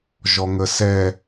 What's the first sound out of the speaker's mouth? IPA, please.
ʒ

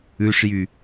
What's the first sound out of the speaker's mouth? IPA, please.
ʉ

